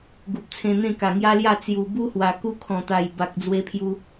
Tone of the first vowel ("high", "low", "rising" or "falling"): low